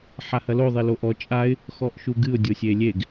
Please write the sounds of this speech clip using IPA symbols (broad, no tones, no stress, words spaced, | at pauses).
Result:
ħahɐlo ðˤeloʔɔ t͡ʃʼaɪ̯ | xɔʔʃuɡɨʊ̯ dʲosʲelʲeɡ